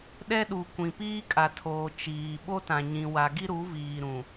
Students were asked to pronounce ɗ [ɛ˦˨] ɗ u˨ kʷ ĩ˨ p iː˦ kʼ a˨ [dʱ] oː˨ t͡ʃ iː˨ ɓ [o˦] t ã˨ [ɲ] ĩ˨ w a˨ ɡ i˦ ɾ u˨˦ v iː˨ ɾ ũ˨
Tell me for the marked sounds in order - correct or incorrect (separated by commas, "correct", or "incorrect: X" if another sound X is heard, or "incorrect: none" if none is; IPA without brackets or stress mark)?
incorrect: ɛ˦, incorrect: tʰ, correct, correct